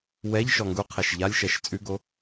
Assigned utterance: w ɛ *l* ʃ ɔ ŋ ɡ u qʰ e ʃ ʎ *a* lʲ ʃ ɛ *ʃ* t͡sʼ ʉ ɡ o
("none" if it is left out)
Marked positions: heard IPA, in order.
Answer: ʎ, a, ʃ

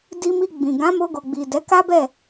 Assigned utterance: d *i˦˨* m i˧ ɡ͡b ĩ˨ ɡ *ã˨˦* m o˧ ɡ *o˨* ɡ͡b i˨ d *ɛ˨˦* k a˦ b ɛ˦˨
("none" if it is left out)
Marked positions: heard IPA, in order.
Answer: i˧, ã˨˦, o˨, ɛ˨˦

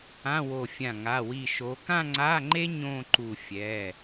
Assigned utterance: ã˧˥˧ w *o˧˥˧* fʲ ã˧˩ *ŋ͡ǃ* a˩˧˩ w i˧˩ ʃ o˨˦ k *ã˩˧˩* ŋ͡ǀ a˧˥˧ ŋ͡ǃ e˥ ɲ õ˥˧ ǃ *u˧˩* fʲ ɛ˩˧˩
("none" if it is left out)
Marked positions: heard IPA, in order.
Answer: o˧˩, ŋ, ã˥˧, u˧˩

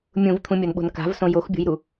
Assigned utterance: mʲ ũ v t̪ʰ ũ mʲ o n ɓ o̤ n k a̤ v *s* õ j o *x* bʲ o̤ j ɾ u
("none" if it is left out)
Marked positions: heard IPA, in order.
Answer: s, x

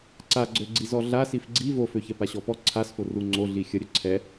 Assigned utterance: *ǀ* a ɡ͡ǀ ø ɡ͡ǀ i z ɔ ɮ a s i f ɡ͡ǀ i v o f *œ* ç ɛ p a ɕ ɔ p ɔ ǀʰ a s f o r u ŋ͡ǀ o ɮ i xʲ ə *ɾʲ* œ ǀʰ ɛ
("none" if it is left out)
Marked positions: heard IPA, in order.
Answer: ǀ, ø, ɾʲ

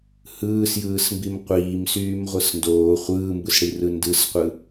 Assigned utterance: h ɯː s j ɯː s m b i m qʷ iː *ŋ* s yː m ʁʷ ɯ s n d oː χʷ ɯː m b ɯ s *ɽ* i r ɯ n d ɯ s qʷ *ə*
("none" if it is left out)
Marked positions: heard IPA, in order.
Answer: m, ɽ, ɯ

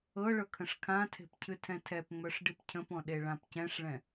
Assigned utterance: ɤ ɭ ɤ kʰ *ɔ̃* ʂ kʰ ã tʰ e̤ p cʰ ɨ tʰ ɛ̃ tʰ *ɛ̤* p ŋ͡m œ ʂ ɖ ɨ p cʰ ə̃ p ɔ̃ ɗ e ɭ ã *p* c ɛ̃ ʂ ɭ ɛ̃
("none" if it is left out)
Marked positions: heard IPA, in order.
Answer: ə̃, ɛ, p

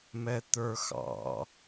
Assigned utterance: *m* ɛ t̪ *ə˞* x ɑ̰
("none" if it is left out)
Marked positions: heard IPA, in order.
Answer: m, ə˞

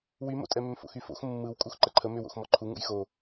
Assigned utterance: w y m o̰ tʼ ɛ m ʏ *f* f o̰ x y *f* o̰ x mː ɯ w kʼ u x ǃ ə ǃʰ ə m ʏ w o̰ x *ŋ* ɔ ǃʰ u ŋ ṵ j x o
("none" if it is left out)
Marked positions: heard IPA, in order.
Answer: m, f, m

